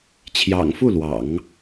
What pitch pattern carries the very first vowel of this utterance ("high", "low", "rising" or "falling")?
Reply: low